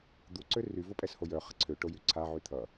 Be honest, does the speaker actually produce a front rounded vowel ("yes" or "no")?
yes